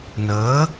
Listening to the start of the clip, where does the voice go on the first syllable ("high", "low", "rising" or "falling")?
rising